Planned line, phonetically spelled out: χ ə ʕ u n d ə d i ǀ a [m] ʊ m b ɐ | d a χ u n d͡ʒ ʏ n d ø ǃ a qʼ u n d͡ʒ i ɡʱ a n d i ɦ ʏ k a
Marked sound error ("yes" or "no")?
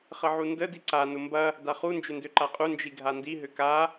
yes